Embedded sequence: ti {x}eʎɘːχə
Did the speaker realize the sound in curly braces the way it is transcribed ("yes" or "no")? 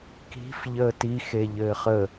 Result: yes